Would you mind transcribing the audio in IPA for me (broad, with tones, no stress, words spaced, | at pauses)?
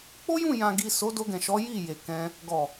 k͡po˦jũ˦˨jã˨ɡi˨ so˨˦ do˧ɡɛ̃˨ʃɔ˨˦ ji˦˨je˨kɛ̃˧ | ɡɔ˨